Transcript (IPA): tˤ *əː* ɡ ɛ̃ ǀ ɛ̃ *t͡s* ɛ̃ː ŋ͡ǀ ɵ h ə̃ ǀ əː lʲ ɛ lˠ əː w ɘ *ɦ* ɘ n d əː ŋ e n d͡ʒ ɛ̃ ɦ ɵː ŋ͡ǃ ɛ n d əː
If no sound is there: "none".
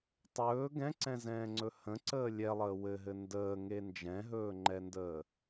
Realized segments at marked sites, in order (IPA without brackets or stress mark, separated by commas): ɵː, z, ɦ